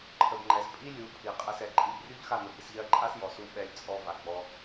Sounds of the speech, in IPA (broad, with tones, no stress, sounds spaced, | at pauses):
ǃʰ ə˧ b ŋ͡ǃ ɛ˧ s pʼ i˦ lʲ u˨˦ pʰ i˨ qʼ ɛ˧ s ɛ˨ ǃʼ i˦˨ b rʲ u˦ ʎ x a˦˨ n ə˨ b i˧ s ʎ ɜ˦ ǃʼ a˦ s j ɔ˨ s u˧ ɓ ɛ˧ lʲ t͡sʼ ɔ˧ v a˨ ɡ͡b ɔ˧